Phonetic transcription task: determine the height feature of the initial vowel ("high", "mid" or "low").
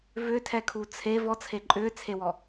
high